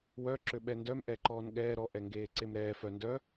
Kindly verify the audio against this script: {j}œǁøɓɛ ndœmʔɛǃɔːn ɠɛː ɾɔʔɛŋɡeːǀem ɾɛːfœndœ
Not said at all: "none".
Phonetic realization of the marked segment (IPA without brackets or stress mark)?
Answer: w